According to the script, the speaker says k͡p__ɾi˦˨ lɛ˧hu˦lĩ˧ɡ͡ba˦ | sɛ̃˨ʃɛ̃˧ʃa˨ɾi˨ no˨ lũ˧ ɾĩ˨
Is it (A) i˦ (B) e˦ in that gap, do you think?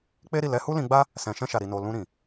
B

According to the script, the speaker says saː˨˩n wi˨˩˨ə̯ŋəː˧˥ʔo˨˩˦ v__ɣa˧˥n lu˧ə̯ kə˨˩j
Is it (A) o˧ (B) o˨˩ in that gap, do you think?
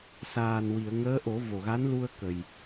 B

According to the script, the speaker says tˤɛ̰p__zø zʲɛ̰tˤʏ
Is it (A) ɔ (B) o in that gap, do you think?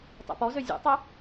A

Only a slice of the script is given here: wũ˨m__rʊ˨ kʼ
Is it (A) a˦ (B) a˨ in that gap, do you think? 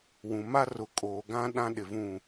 A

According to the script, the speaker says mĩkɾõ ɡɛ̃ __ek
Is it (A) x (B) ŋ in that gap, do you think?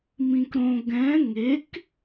B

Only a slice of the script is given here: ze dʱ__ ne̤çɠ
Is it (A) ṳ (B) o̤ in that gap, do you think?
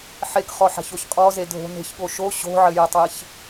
B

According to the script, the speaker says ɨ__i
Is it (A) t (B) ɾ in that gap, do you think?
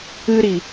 B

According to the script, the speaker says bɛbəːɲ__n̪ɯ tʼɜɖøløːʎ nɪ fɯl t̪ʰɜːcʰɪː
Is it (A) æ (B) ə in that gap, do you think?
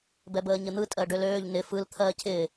B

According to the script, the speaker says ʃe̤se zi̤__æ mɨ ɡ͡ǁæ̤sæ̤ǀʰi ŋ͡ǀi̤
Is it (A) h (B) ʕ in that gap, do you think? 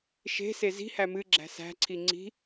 A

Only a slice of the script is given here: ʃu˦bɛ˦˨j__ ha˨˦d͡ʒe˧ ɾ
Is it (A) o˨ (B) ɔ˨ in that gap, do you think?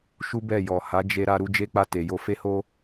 B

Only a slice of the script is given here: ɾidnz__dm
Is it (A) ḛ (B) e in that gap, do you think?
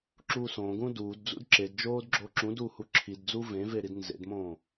A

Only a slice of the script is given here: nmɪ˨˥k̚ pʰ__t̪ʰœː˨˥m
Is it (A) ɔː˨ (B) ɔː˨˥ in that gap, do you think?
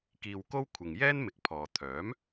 A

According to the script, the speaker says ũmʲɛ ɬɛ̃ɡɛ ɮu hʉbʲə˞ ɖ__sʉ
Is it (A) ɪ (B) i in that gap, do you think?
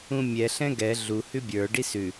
B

